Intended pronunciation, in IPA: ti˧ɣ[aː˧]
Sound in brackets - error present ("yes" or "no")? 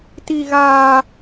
no